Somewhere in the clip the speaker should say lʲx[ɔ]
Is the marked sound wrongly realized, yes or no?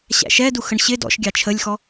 no